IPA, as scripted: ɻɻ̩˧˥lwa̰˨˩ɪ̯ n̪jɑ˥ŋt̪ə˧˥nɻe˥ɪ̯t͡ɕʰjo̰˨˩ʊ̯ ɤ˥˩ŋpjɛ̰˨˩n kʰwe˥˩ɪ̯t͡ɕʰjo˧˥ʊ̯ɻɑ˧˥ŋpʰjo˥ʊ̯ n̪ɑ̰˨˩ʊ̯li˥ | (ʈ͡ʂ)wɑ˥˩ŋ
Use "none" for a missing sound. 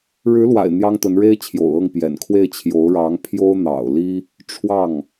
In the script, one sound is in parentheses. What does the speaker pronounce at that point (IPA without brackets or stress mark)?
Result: ʈ͡ʂʰ